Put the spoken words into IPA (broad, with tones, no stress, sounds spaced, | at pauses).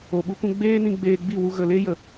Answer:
o˨ ɓ u˧ k ũ˧ ɡ͡b eː˦ n ĩ˧ ɡ͡b eː˧ ɡ͡b i˦˨ w u˧ ɣ ə˨ l e˦ j ə˨